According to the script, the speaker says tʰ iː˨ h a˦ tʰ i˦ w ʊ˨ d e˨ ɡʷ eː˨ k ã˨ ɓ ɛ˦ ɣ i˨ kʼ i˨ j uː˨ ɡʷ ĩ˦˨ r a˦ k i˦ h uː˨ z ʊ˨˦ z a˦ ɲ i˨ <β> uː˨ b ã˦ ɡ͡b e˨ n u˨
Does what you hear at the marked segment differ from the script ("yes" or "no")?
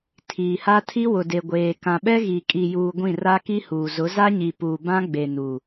yes